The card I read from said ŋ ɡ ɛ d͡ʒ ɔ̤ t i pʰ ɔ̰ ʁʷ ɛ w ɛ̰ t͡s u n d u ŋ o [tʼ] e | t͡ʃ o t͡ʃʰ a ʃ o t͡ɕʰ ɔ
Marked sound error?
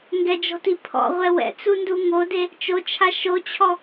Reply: yes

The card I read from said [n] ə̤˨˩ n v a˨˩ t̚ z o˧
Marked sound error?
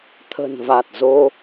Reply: yes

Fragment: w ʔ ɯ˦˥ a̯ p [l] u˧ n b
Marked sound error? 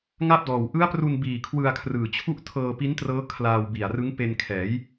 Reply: yes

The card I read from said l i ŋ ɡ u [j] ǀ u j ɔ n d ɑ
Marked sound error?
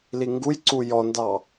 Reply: no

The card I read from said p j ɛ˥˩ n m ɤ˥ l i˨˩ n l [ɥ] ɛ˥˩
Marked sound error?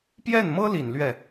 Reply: no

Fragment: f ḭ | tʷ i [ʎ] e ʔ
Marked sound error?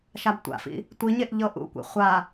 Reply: yes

